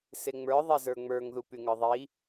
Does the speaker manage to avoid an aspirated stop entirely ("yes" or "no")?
yes